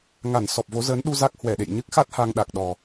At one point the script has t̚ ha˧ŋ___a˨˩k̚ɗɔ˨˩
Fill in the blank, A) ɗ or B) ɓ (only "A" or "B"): A